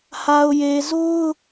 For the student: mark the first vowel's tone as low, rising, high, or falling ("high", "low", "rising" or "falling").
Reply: low